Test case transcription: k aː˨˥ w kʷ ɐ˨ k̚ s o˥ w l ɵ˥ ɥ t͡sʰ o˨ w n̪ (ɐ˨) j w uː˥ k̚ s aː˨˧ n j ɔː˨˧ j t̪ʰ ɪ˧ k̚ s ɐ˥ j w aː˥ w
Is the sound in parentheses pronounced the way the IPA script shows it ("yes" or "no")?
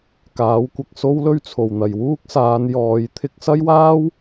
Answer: yes